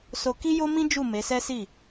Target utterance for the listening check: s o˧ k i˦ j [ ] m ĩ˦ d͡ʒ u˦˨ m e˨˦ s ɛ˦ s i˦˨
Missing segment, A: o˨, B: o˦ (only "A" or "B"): B